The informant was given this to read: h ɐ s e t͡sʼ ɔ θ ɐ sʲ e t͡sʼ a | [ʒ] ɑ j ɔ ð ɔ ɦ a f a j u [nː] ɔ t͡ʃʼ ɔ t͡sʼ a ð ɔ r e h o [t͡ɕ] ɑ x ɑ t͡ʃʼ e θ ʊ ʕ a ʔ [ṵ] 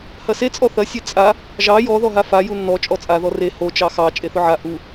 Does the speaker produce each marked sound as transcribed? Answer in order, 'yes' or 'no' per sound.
yes, yes, no, no

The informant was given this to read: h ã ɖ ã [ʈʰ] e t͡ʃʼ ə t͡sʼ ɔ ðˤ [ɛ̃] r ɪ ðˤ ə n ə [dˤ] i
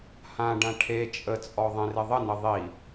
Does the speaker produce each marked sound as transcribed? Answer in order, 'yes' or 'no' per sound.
yes, no, no

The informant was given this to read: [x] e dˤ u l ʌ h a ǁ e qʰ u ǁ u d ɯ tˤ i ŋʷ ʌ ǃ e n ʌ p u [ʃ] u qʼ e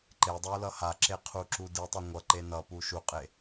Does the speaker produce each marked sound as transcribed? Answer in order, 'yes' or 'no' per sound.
no, yes

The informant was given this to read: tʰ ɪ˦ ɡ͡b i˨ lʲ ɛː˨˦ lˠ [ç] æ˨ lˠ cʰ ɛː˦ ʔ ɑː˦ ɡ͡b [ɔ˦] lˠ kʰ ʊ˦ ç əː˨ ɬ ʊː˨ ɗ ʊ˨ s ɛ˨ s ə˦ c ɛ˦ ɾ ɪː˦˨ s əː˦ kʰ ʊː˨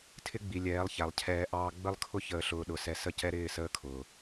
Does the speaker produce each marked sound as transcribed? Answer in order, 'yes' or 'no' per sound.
yes, no

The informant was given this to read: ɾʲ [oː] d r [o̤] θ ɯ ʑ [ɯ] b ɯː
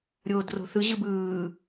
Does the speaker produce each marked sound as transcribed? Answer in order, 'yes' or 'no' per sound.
yes, yes, yes

